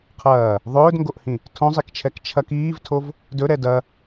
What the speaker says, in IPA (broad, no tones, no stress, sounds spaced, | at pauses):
qʰ ɐː | ðˤ ɵː d ŋ ɡ o ʔ h ĩ | tʰ õ zˤ i k t͡ʃʰ ɛ k t͡ʃʰ ɐ k iː v tʰ o v | d ɵ ɾ ɛ d ɐ